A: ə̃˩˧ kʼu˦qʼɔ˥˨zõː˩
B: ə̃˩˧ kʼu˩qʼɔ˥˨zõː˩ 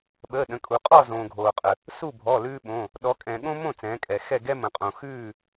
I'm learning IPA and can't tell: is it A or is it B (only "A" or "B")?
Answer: B